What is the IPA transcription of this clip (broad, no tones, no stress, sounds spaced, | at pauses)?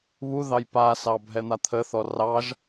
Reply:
β u ð ɑ j p a s ɑ bʱ ɛ n̪ a t̪ʰ ə θ ɔ r ɑ ʒ